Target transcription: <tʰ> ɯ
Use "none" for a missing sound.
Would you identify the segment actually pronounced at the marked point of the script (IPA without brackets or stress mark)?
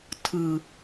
tʰ